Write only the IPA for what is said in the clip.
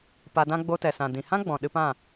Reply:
p a˧ d ã˦ ɡ͡b o˧ t ɛ˨ s ã˨ d ĩ˨ h ã˦ ɡ͡b ɔ̃˨ ɗ ɨ˧ p ã˦˨

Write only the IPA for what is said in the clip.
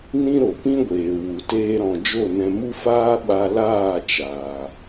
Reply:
n ĩ˦ ɾ o˨ p ĩ˦ ɡʷ eː˨ w u˨ t eː˧ ɾ ɔ̃˨ d͡ʒ o˦˨ n ɛ̃˧ m u˦ f aː˦ ɓ a˧ l aː˦˨ t͡ʃ aː˨

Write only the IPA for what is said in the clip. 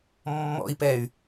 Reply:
mː ɔ̰ i̯ p ɛ y̯

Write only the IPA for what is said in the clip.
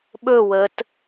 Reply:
ɓ ɵ w ə t

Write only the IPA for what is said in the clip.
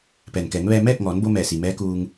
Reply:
p ɛː˩ n k ɛː˩˧ ŋ ʋ ɛː˧ m ɛː˥˨ k̚ ŋ ɔː˩˧ n b o˧ m ɛː˧˩ s i˩ m ɛː˧˥ k uː˧ ŋ

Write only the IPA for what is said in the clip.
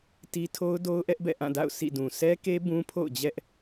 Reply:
t i˦ tʰ o˦ ʊ̯ d o˦ ʊ̯ ʔ ɛ˦ ʔ b ɛ̰˦˨ ʔ ã˦˨ d a̰˦˨ ʊ̯ sʰ ḭ˦˨ d ũ˨ sʰ ɛ˦ k e˦ b ũ˦ pʰ o̰˦˨ ʊ̯ d͡ʑ ɛ˦ ʔ

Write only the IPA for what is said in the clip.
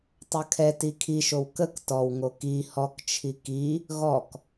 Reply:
tˤ ɐ kʰ ɛ t i kʰ i ʃ o w k ə k t ɔ w ŋ o k i h ɔ k t͡ʃʰ i k i | ɣ ɔ k

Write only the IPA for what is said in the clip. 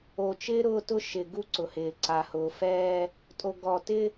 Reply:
o˨ t͡ʃ ɪː˦ ɾ ʊː˦ t ʊ˦ ʃ ɪ˨ ɡ u˦ ǀ ʊ˨ h ɪː˨ ǀ a˨ h ʊː˨ f ɛː˦ | tʼ o˨ ɡ ɔ˨ t ɪ˦

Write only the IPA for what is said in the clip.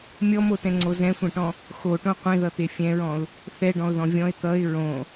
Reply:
mʲ ɔ m o t ɛ̃ ŋ͡ǀ o z ɛ̃ sʷ ɛ̃ ʈ ɔ̃ | x o ʈ õ qʷ ẽ ð ʌ t̪ e fʲ ɛ̃ ɹ ɔ̃ ʊ̯ | θ ɛ ɖ ɔ̃ ʊ̯ ð ɔ̃ vʲ ɔ̃ ɪ̯ t̪ ʌ ɪ̯ ɹ õ

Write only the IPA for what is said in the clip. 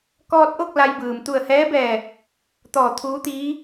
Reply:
k ɔː˧ t̚ ʔ o˥˨ k̚ l a˧ j b ɯː˩ m t̪ u˧˩ ə̯ h ɛː˧˥ b ɛː˧˩ | t̪ ɔː˧˩ t̪ʰ uː˧˥ t̪ iː˧˥

